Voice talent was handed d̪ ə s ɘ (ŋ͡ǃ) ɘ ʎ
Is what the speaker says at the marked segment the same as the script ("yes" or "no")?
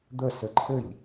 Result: no